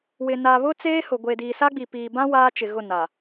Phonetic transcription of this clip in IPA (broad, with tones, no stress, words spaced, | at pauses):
wɪ˨na˨βʊ˦ t͡seː˦hʊ˨ ɡʷe˨diː˨sa˦ɡ͡bi˨ piː˨bã˦ waː˦t͡ʃɪ˨ ɣʊ˦˨na˨